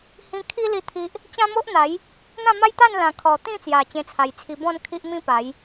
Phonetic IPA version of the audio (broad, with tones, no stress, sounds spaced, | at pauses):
h ĩ˧ kʰ i˦ l i˥˧ t̪ʰ i˦ ʔ | t͡ɕ ã˦ m o˦ ʔ n̪ a˨˦ j | n̪ ã˥˧ m a˦ j t̪ a˥˧ n l ã˨˩ kʰ ɔ˨˩ t̪ ĩ˥˧ t͡s j a˨˩ t͡ɕ ẽ˧ t͡sʰ a˨˩ j t͡sʰ i˧ b ɔ̃˥˧ n kʰ i˦ ʔ m ĩ˦ p a˨˦ j